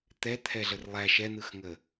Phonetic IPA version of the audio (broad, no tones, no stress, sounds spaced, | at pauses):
t̪ ɛ t̪ʰ ɛ ɮ ə r lˠ æ ʃ ɛ n̪ ɯ x ŋ ə